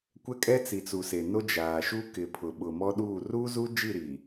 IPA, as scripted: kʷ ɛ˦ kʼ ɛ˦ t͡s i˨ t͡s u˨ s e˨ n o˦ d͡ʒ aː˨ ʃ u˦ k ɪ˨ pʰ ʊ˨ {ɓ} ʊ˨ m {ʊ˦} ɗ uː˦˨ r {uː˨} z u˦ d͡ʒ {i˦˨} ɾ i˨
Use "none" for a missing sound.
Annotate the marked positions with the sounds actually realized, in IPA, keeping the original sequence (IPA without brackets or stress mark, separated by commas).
ɓ, ɔ˦, uː˦, i˦˨